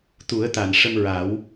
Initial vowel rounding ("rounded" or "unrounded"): rounded